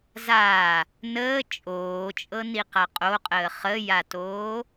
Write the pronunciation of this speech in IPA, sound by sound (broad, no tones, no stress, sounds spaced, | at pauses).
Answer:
z aː | n əː t͡ʃʼ oː t͡ʃʼ ɤ n i q a qʼ o qʼ əː χ ə j a t oː